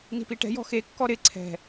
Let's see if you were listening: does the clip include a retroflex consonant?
yes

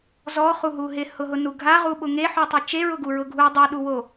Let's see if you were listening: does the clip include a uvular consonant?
yes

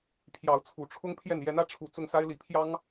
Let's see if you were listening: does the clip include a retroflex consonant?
yes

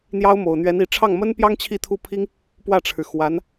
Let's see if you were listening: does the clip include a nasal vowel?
no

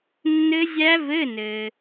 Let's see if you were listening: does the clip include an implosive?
no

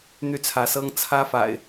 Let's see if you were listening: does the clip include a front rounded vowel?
yes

